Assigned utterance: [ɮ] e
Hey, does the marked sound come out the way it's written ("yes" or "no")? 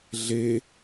yes